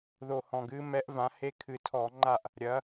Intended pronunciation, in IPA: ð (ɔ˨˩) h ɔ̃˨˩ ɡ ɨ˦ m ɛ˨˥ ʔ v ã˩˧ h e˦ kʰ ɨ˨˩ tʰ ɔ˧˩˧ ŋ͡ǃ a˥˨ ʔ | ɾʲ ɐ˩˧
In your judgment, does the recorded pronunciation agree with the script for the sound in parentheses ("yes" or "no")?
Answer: no